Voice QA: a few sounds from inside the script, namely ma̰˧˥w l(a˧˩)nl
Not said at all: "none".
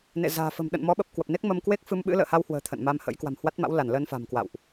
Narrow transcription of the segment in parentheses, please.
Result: a˧˩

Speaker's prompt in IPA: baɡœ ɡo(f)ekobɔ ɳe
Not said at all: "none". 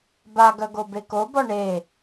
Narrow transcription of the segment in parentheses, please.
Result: b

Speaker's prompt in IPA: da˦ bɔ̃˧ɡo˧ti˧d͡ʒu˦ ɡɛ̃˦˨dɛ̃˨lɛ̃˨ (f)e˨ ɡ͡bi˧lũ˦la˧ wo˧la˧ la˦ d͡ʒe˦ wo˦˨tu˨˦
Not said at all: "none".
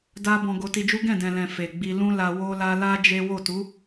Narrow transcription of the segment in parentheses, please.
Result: f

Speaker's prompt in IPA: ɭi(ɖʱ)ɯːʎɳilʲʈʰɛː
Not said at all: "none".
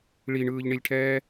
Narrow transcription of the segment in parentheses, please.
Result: ɳ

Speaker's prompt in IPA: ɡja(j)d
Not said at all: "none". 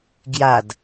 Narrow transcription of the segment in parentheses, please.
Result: none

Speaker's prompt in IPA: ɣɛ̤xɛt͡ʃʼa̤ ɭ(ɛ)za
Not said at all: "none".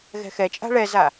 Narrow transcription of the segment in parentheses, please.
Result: ɛ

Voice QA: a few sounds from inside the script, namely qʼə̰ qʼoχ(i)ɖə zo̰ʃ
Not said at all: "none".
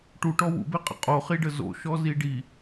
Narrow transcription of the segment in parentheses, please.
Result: i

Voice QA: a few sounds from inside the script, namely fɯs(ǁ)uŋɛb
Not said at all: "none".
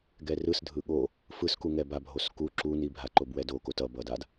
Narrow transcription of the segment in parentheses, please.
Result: k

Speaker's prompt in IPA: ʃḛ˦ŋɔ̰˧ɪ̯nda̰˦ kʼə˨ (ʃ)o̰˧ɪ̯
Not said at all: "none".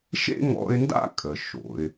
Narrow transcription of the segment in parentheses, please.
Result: ʃ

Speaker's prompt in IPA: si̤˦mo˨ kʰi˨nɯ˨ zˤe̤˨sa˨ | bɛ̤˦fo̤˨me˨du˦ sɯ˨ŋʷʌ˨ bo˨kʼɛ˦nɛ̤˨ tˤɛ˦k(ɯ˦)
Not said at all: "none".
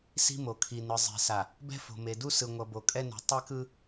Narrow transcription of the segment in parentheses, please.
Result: ɯ˦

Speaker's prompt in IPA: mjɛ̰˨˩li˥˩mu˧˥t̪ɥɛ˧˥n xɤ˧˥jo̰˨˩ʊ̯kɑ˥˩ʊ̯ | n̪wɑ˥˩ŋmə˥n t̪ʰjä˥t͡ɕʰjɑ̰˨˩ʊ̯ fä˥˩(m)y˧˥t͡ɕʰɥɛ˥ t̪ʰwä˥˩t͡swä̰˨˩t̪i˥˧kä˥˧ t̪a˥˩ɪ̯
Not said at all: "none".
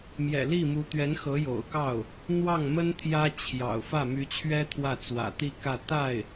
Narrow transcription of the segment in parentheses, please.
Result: m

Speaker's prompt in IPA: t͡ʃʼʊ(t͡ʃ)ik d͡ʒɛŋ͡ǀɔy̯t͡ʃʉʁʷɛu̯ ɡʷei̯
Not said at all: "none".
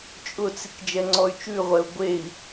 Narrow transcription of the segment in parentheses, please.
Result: t͡s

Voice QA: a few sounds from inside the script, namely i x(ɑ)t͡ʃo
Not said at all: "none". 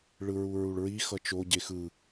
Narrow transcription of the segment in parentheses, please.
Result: ʌ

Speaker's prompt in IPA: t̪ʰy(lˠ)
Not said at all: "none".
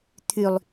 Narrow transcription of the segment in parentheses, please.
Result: lˠ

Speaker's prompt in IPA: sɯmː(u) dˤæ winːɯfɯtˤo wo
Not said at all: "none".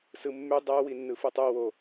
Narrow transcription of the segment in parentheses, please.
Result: y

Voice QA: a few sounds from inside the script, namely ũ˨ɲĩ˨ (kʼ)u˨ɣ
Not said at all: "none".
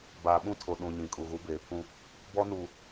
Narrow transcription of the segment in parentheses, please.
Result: kʼ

